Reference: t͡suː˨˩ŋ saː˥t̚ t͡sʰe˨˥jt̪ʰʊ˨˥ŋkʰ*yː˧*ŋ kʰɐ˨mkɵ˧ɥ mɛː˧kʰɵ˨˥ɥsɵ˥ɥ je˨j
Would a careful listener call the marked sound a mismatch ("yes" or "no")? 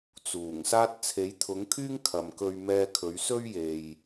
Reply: yes